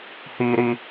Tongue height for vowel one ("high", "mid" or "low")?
high